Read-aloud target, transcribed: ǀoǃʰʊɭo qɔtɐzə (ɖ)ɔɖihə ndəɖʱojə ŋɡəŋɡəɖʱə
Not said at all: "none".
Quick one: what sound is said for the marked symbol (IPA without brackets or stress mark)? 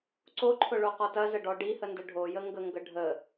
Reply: ɖ